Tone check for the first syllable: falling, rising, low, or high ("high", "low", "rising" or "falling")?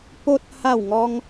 high